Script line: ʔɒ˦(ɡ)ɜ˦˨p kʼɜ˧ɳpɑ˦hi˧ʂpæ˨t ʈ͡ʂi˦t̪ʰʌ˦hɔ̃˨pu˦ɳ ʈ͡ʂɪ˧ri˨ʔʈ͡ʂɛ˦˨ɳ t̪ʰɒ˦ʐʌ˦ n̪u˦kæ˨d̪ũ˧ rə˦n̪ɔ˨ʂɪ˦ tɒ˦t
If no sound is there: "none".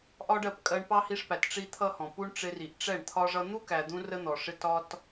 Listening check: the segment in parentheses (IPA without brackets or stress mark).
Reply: ɖ